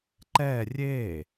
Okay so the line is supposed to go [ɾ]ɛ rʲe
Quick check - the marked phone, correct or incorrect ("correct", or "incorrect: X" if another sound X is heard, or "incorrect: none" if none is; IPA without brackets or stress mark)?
incorrect: ǃ